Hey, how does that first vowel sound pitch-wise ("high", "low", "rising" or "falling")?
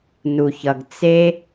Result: low